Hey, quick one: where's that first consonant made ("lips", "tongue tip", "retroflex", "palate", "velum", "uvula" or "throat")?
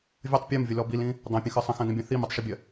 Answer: lips